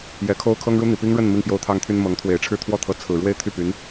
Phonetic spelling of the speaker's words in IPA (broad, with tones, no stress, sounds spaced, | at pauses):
j ɛ˧˥ kʰ o˥ ʊ̯ kʰ ɤ˥ ŋ ɻ u˥ n̪ i˨˩ p i˥ ŋ ɻ ə˥˧ n m i˥˩ ŋ p j o˥ ʊ̯ t̪ʰ ɑ˥ ŋ t̪ʰ y˥ n m ɤ˧˥ ŋ t̪ʰ w e˨˩ ɪ̯ ʈ͡ʂʰ ɻ̩˥˧ t̪ʰ w ɔ˥˩ t̪ʰ ɤ˧˥ t͡sʰ ɹ̩˨˩ ɻ w e˥˧ ɪ̯ t̪ʰ y˥˩ p y˧˥ n